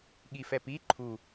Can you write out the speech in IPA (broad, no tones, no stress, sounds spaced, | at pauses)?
ɠ i f ɛ p i ǃʰ u